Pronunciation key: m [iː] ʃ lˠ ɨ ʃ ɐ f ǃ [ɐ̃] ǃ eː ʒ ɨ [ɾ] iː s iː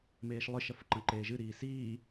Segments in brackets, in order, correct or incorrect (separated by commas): incorrect, correct, correct